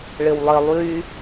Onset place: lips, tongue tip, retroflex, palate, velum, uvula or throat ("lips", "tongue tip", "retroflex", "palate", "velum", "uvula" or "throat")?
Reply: retroflex